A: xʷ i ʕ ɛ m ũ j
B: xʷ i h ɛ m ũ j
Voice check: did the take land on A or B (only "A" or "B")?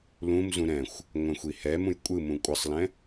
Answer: B